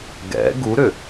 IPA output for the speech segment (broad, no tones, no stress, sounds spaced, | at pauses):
ɡ ɛ̰ ɡ u ɾ ʏ